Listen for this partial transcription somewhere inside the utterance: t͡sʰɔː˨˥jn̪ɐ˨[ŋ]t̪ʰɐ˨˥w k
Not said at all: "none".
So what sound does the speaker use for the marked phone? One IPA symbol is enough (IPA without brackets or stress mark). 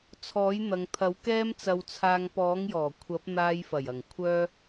ŋ